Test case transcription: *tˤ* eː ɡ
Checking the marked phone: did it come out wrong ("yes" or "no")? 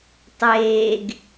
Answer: no